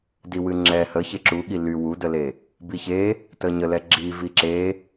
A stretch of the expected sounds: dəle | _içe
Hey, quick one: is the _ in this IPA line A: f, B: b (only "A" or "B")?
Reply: B